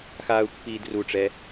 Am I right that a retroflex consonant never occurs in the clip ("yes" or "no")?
no